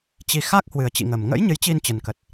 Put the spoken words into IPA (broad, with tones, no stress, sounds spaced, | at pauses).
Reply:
t͡ɕ i˨˩ x a˦˥ k̚ h w ɨ˨˩ ə̯ t͡ɕ ḭ˧˨ ŋ əː˨˩ m ŋ ə̰˧˥ j ɲ ɨ˨˦ j t͡ɕ i˧ n t͡ɕ ə˨˩ n k ə˨˩ t̚